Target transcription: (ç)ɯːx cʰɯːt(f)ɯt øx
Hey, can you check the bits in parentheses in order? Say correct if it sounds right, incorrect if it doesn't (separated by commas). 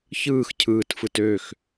correct, correct